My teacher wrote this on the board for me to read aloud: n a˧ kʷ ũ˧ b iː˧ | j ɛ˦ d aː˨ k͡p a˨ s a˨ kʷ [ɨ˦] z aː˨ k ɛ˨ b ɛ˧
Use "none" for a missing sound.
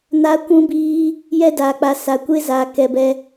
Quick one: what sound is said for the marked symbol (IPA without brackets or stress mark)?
e˦